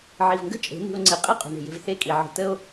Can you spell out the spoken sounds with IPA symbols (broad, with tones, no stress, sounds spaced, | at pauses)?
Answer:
ʕ i˨ v ŋ ɡ ə̤˦ t͡ʃʼ e̤˨˦ n i̤˧ o̯ ŋ͡ǀ i˨ qʼ i˦ qʼ o̤˨ ɳ e̤˨ j e̤˧ v θ e˦˨ kʼ i˨ ʕ ə̤˨ t ə˦ o̯